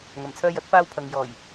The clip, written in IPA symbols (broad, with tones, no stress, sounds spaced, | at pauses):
ŋ ɐ˨˩ m t͡sʰ œː˧ j ɐ˨˥ t̚ f aː˧ w pʰ ɐ˨ ŋ j ɔː˨˩ j